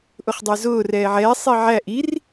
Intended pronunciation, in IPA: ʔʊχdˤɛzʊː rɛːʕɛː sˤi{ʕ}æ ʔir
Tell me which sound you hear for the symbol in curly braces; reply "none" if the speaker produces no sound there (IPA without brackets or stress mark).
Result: ʕ